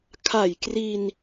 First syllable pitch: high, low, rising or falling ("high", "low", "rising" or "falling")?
low